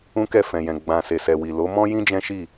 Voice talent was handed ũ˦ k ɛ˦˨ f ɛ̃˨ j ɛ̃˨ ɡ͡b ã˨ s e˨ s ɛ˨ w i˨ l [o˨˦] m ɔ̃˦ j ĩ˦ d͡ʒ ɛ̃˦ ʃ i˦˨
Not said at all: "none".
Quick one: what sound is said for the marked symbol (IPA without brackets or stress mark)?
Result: o˨˦